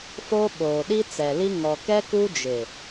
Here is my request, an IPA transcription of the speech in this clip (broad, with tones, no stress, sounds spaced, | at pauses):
f o˦ ɓ oː˨ ɗ i˦ t͡s ɛ˨ l i˦ ŋ ɔ˨ k ɛ˦ k u˦ d͡ʒ ɪ˨